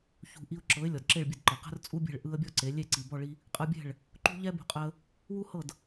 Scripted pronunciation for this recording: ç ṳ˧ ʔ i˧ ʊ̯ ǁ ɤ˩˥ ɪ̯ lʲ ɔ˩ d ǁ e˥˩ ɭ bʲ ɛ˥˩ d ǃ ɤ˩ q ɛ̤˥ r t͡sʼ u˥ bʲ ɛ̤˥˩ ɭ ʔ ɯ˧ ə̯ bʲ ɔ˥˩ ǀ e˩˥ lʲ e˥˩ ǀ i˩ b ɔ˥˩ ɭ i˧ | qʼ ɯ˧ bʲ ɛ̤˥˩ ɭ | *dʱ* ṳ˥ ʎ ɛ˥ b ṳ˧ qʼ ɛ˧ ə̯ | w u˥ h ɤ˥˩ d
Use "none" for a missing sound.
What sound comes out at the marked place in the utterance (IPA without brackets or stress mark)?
ǃ